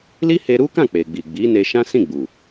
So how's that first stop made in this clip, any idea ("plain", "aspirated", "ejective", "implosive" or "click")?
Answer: plain